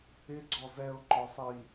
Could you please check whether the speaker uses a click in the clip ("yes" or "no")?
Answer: yes